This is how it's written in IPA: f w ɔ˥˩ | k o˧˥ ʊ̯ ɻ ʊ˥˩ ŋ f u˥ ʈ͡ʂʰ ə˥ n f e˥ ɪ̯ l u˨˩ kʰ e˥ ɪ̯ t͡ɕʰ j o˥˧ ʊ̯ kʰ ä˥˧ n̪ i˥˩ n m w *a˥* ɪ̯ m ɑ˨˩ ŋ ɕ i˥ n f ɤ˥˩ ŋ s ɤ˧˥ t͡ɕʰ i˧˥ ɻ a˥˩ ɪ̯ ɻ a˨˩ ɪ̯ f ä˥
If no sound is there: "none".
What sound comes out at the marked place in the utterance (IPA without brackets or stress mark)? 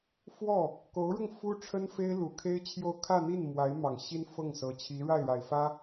a˧˥